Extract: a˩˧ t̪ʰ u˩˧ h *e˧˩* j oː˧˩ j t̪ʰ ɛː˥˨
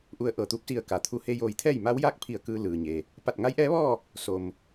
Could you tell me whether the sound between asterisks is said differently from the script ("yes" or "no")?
yes